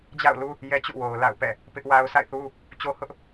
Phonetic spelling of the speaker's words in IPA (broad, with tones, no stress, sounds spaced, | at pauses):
d͡ʑ a̰˦˨ ʊ̯ l u˦ | j ɛ˦ t͡ɕ ṵ˦˨ w o˨ ʊ̯ l a̰˦˨ ʊ̯ p ɛ̰˦˨ | p ɪ˦ ʔ w a˦ ʊ̯ sʰ a̰˦˨ ɪ̯ θ u˦ | t͡ɕ o˦ h ʊ˦ ʔ